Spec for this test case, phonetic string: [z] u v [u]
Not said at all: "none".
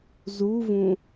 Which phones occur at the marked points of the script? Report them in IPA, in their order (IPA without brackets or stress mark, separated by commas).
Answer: z, ũ